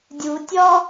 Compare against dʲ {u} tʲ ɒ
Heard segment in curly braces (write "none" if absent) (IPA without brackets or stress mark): u